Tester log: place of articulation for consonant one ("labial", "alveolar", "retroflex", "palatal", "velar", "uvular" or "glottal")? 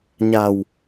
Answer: palatal